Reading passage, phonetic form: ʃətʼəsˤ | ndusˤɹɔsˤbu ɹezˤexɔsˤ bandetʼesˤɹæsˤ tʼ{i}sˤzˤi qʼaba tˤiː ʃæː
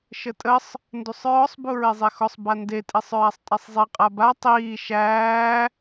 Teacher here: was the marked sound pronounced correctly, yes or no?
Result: no